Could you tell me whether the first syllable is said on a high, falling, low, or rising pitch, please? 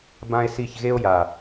high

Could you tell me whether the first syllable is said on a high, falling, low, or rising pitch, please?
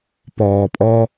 low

